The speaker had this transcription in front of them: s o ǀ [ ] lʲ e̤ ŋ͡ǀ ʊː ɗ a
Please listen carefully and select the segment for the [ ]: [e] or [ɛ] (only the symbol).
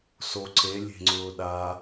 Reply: e